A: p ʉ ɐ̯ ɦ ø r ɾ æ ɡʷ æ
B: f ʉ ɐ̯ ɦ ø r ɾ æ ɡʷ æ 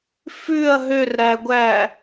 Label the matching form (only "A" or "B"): B